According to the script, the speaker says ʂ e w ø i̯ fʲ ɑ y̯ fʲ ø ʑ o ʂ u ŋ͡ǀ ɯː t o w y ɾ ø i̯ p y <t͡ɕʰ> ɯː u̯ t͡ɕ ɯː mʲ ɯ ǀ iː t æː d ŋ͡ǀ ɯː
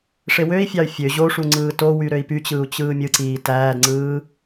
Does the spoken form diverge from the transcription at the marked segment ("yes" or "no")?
yes